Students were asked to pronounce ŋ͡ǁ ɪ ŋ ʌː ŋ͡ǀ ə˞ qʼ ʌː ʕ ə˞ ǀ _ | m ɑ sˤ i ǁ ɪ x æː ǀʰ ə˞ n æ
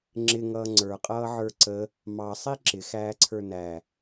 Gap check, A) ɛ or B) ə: B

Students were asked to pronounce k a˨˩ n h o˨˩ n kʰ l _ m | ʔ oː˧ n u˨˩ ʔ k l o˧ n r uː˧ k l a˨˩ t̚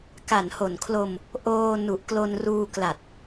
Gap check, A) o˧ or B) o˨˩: A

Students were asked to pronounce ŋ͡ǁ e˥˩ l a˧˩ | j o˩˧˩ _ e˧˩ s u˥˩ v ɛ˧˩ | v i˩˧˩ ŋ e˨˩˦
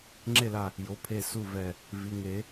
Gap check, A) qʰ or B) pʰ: B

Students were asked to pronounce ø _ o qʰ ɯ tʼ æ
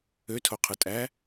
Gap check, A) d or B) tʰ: B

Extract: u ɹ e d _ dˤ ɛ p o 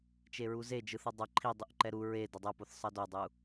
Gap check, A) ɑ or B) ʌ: B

